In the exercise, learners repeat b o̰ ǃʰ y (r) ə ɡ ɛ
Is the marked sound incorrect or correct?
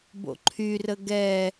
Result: correct